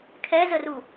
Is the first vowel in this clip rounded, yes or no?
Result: no